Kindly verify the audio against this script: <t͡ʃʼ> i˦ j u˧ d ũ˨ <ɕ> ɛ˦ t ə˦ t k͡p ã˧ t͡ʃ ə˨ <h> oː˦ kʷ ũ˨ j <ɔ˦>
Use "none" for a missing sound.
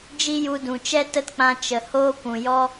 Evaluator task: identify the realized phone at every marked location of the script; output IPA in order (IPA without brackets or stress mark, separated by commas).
d͡ʒ, t͡ʃ, h, ɔ˦